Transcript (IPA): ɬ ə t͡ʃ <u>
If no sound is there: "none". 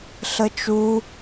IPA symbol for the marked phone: u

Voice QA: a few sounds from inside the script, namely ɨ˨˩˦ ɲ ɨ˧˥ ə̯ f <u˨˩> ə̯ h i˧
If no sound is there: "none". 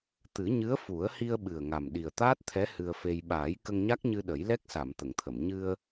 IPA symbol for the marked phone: u˨˩˦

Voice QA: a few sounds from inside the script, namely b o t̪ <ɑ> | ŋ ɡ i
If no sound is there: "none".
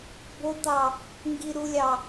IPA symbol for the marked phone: ɑ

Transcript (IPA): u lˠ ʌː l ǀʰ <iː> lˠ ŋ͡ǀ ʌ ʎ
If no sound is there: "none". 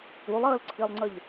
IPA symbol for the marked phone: i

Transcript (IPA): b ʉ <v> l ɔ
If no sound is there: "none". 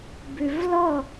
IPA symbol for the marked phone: v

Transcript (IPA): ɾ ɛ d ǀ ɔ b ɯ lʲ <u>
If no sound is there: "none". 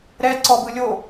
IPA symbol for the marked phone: o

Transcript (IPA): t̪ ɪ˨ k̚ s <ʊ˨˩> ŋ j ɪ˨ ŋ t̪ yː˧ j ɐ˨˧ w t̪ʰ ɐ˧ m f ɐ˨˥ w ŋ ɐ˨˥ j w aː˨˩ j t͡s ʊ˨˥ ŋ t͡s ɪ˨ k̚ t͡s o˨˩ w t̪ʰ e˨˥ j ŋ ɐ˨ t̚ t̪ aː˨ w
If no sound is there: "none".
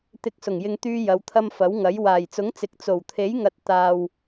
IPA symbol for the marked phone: ʊ˨˩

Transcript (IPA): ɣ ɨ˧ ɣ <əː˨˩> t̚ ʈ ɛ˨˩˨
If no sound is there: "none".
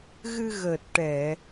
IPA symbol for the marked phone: əː˨˩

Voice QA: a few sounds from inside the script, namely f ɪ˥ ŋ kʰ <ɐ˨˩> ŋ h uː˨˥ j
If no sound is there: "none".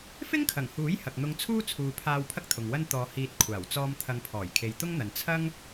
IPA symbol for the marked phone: ɐ˨˩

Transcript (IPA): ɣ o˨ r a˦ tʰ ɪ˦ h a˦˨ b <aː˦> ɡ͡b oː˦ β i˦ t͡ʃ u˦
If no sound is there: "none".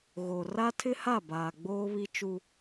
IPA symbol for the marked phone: aː˨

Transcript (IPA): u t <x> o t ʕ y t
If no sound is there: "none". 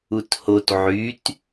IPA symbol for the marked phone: h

